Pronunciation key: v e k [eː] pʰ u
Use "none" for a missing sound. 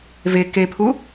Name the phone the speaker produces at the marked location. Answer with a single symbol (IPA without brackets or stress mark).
e